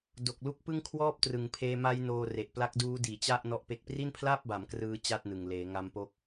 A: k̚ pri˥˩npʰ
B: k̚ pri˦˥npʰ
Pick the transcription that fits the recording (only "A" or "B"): A